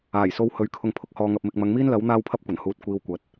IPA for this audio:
aː˨˩jso˧w hɵ˨˧ɥkʰʊ˧ŋ pʰʊ˥k̚hɔː˧ŋɐ˧p̚mɪ˧k̚ mɐ˨˧ŋmiː˥nlɐ˨˥w n̪aː˥wpʰɐ˥p̚kʷɐ˨˩nhuː˧t̚ kʷiː˧wkʷɐ˨˥t̚

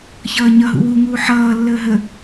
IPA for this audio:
çʌːɲʌ ɦṵwuŋuː ħʌː lːəːɦə

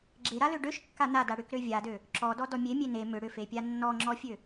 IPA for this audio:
ɡ͡ǁeɾalø ɖøʃkːa nada ɽʏkɾø vʲadø | ǁɔdɔdɔ mʲemʲe ne mʏ ɽʏfepʲa nːɔŋ͡ǁɔfʲø

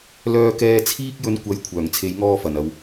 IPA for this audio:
lœː˧kɛː˧ t͡sʰiː˧k̚jɵ˨˧n kʷɐ˨˥j kʷʰœː˨˩ŋt͡sʰe˨˧jŋɔː˧ fɐ˨˩nɐ˨w

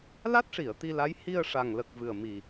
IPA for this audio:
la˦˥t̚ʂi˨˩˨ə̯ t̪i˧la˧˥j hi˧ə̯ʂa˨˩ŋlə˨˩k̚ vɨ˨˩ə̯mi˨˩

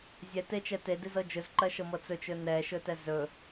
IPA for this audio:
zʲɛtet͡ʃɛ tedizɤ d͡ʒɵzǃɜʃɤmɤ t͡sɵt͡ʃɵ nɛʃɵtɛz ɵ

